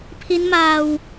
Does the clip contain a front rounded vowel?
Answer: no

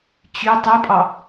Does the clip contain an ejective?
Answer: yes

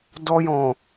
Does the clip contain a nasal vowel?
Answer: yes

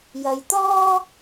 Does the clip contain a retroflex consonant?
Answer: no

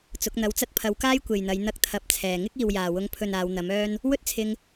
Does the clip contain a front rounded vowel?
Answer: yes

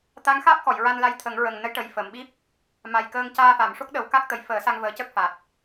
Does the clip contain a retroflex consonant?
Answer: yes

